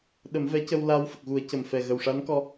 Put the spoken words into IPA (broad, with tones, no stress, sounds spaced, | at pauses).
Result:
ɗ ə˨˩˦ m v ɛ˧˥ c ə˧ w l aː˧ w f ə˨˩ k̚ ɣ u˨˩˦ ə̯ c ə˨˩ m f ɛ˨˩ ɣ ə˨˩ w ʂ a˧˥ n k ɔ˧